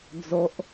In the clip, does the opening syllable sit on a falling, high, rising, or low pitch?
high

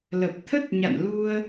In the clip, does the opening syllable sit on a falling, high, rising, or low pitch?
low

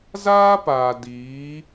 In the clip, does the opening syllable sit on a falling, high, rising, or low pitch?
high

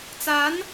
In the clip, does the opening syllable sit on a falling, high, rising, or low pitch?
rising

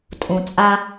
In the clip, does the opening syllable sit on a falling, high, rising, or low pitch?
low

